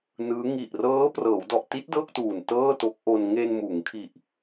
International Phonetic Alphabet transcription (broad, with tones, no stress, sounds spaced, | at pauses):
n ɯː˦˥ ŋ i˨˩ ʔ r ɤː˦˥ p r ɤː˩˦ w d ɔ˨˩ ʔ t i˦˥ t̚ d ɤː˥˩ k̚ t uː˨˩ n t ɤː˥˩ t o˦˥ k̚ ʔ o˧ n ŋ e˧ n m uː˩˦ ŋ kʰ i˨˩ ʔ